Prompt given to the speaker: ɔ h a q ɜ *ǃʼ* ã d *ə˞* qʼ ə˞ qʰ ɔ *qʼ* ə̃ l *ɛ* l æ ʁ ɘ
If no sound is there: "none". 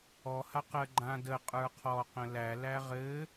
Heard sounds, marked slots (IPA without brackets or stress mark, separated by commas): ɡ͡ǃ, ə, q, æ